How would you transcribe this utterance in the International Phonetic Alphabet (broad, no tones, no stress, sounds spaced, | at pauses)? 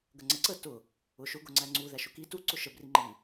ɡ ə ŋ͡ǀ ə ǀ ə t ʊ | ʊ ʃ ʊ ɡ ʊ ŋ͡ǀ æ ŋ͡ǀ u ð æ ʃ ʊ k i t u ǀ ʊ ʃ ə b r i ŋ͡ǃ i